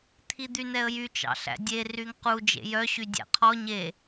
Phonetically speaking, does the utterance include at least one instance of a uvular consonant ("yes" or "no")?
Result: yes